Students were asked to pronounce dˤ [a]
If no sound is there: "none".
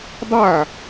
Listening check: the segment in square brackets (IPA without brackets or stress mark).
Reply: a